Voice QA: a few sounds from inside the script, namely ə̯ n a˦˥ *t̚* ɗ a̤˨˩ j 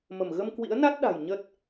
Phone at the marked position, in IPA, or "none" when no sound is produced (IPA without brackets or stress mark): t̚